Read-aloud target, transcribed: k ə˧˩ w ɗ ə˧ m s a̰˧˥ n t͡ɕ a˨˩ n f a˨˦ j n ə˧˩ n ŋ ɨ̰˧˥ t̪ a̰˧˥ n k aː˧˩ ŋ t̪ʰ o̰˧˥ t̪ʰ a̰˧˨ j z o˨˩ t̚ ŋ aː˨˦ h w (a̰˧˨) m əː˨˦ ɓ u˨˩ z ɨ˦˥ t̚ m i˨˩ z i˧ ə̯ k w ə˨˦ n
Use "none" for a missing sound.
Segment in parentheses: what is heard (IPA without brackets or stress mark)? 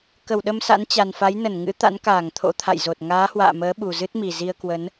a̰ː˧˨